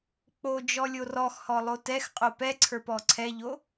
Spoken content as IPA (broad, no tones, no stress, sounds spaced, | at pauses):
k͡p o d͡ʒ ɔ lʲ o r ɔ x h ɔ lˠ o t ɛ x qʼ o p ɛ ǀʰ ə˞ p ɔ ǀʰ ɛ ʎ o